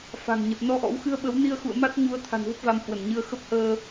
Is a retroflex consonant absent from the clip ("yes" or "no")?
yes